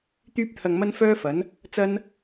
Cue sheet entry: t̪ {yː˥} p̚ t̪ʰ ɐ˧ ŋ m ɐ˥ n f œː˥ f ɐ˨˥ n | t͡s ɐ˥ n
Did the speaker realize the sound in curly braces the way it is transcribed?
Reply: yes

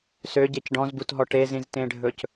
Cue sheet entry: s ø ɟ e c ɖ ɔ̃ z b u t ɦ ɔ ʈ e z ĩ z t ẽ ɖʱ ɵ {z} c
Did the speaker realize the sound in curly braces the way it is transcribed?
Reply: no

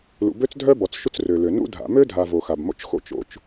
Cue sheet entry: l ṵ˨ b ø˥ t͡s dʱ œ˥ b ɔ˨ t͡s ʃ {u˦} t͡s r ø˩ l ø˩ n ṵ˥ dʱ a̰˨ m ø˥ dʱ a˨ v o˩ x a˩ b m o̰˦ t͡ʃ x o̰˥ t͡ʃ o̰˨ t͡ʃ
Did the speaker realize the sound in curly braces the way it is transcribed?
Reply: yes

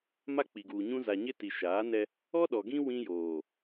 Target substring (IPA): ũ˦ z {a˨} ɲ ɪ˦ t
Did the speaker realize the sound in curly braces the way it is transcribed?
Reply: yes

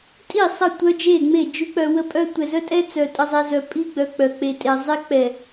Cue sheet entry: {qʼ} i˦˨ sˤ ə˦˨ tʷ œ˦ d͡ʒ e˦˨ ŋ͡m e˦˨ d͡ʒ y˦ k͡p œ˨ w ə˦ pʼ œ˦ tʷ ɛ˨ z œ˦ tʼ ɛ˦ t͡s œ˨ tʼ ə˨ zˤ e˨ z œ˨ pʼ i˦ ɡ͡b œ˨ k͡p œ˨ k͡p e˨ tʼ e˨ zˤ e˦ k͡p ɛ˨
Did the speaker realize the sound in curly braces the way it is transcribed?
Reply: no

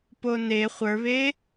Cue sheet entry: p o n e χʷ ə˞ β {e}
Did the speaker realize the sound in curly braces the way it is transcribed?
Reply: yes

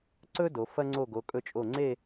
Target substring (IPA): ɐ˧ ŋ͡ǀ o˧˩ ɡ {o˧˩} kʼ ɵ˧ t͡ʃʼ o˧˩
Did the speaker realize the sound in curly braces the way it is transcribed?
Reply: no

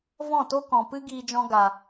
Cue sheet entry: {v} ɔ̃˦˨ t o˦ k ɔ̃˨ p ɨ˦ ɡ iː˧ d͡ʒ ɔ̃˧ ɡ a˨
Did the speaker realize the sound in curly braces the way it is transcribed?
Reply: yes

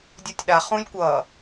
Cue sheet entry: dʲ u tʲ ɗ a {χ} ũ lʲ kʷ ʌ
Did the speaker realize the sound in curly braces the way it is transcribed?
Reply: yes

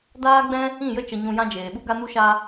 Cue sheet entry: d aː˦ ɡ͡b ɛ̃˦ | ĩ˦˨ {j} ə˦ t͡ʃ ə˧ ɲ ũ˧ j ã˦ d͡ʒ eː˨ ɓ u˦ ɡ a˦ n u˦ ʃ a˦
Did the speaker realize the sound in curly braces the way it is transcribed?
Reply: yes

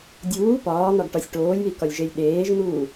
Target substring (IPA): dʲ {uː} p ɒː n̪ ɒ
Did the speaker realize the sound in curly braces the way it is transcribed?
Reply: yes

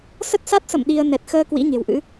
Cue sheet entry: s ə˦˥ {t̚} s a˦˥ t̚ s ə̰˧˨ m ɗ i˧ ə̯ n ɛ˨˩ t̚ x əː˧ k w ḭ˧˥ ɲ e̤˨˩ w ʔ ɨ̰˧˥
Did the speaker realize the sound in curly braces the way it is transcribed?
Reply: yes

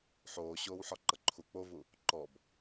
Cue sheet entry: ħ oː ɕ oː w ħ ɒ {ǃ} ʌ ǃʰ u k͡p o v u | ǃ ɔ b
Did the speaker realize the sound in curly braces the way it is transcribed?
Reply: yes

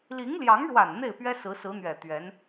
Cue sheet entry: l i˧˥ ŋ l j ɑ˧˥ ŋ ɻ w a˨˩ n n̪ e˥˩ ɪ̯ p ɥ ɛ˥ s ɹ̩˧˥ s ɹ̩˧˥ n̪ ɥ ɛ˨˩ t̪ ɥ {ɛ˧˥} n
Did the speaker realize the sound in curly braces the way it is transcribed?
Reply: yes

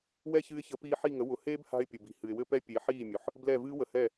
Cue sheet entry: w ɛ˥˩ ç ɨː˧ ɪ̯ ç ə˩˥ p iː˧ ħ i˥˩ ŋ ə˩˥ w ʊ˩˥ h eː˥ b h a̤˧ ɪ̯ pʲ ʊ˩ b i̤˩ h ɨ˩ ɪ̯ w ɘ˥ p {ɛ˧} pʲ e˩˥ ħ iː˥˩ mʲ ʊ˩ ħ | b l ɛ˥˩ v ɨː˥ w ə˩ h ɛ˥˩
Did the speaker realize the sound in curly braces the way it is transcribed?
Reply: no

